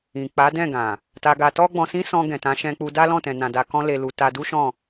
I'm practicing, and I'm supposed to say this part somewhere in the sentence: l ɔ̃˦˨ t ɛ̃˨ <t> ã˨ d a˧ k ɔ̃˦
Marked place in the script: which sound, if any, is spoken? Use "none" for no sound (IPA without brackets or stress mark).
n